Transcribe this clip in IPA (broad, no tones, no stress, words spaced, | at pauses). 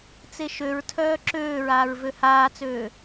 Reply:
t͡seʃøɹtʰœː ǁøːɹaːɹ vøhaːt͡søː